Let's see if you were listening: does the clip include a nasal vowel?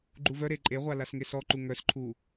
no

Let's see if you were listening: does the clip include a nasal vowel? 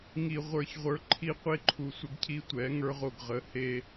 no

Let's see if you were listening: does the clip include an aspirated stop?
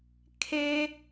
yes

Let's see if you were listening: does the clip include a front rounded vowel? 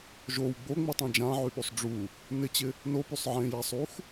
yes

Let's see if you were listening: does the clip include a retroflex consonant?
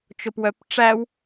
yes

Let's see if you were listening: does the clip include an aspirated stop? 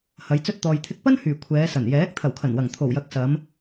yes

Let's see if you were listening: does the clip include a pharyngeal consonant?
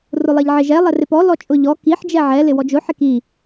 yes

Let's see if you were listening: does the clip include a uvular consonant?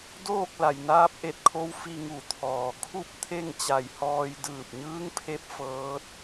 no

